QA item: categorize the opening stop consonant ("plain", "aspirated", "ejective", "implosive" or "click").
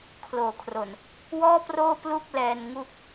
aspirated